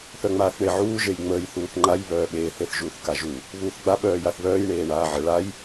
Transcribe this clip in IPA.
θ œ ŋ͡m aː θ ɳ e ʕ uː ʒ e j ŋ͡m əː j θ uː θ ŋ͡ǃ a j β œː ɓ eː θ e θ ʒ uː θ k a ʒ u | β uː θ ɡ͡b a ɓ œː j a θ β œː j ɳ eː ɳ aː ʕ ə ɭ a j

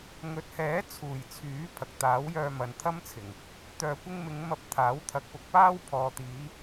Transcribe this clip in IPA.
ŋ ɵ˨ t̚ h ɛː˨˥ t͡sʰ uː˨˩ j t͡sʰ yː˨˥ pʰ ɐ˨ k̚ t̪ aː˨˥ w j œː˧ m ɐ˨ n t̪ʰ ɐ˥ m t͡sʰ ɪ˨˩ ŋ | t̪ œː˨ kʷ ɪ˧ ŋ m ɪ˨˧ ŋ m ɐ˧ p̚ t̪ʰ aː˨˥ w t̪ʰ ɐ˨˥ k̚ p ʊ˨ k̚ p aː˥ w pʰ ɔː˨ t̪ iː˨˧

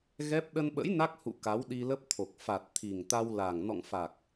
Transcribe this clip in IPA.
ɣ ɛ˦˥ p̚ ɗ ə˧ n ɓ ə̰˧˥ j n a˦˥ k̚ h ṵ˧˨ k a˨˦ w ɗ i˧ l ə˦˥ p̚ t̪ʰ o˨˩ k̚ f a˨˩ t̚ t̪ʰ i˨˩ ŋ t̪ a˧ w l a˨˩ ŋ n ɔ̰˧˨ ŋ f a˨˩ k̚

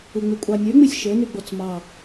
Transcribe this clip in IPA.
ɯ ŋ͡m y kʷʼ ɑ nʲ ø ŋ͡m i sʲ ʃ ø n y ɡ͡b o t͡s m ɑ

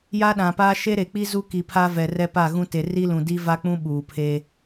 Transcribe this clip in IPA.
j a˦ ɗ ã˨ p aː˦ ʃ e˦ ɾ e˨ k͡p i˦ z u˦ k i˨ pʰ a˦ v ɛ˨ r ɛ˦ p a˦˨ ɣ ũ˦ t e˨ r i˦ l ũ˨ d i˦ v a˦ k͡p ũ˦ ɓ uː˨ pʰ e˦

